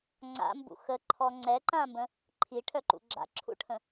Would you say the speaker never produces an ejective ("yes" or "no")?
yes